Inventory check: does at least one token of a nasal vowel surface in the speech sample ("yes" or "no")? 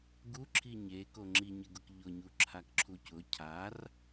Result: no